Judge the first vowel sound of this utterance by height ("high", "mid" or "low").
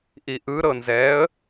high